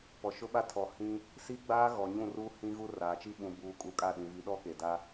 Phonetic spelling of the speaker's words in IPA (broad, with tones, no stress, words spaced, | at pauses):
pɔ˨ʃʊ˦ɓa˦ tʰɔ˨ hĩ˦ | si˦ɡ͡baː˦ ɣɔ˨ɲũ˦˨ruː˦ hĩ˦ɣu˦ raː˨t͡ʃi˦ ɓũ˨buː˨kʼu˨ kʼa˦˨ɗĩ˨vi˨˦ ɗɔ˦ke˨da˦